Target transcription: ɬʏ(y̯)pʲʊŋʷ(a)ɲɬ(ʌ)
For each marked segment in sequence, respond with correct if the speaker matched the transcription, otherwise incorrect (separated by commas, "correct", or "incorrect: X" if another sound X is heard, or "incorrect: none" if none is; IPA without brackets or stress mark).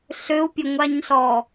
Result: incorrect: u̯, correct, incorrect: ɔ